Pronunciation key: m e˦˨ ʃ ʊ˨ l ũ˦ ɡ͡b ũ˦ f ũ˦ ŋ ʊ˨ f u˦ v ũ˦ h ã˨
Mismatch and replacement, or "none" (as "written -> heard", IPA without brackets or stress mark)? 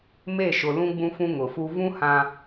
none